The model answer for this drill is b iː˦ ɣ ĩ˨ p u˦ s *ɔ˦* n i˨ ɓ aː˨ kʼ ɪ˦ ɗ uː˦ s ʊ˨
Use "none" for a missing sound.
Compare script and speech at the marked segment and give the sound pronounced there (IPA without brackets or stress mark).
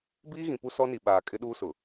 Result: ɔ˦